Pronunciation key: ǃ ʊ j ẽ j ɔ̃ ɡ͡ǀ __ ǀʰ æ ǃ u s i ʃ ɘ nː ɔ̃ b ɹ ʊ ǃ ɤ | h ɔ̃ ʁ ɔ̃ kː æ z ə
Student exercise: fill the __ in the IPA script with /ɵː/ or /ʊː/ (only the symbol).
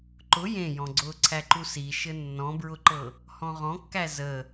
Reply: ʊː